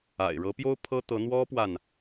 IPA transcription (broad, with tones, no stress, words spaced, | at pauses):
a̰˨˩ɪ̯ɻɤ˧˥pjo˥ʊ̯ pʰɤ˥t̪ɤ˧˥ n̪wɔ˥pwa˨n